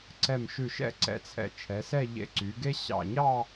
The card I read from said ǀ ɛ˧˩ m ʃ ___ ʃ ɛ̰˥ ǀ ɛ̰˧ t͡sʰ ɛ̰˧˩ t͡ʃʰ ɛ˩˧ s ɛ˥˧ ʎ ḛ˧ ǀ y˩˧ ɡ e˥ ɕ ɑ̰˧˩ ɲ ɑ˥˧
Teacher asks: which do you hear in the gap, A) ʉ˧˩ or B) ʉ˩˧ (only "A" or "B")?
A